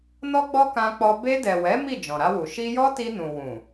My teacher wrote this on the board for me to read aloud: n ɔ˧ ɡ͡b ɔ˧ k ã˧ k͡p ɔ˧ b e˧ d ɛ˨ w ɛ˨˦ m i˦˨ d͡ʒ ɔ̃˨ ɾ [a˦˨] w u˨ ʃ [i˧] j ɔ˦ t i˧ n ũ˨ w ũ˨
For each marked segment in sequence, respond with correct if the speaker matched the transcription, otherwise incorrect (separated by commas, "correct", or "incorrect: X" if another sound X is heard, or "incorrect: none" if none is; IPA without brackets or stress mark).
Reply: incorrect: a˧, correct